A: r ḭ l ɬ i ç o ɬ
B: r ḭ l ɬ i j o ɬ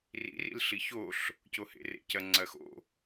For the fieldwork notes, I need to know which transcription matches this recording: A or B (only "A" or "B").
A